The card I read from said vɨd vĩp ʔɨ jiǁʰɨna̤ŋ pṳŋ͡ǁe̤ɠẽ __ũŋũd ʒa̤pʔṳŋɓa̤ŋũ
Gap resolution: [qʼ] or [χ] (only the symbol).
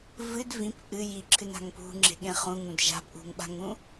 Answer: χ